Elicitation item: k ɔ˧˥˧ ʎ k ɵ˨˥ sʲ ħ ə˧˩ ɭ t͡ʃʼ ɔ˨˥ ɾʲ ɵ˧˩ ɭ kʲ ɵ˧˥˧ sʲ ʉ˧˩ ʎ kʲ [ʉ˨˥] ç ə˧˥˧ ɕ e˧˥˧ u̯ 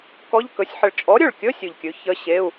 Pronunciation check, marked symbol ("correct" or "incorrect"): correct